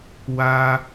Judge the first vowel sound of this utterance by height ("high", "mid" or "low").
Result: low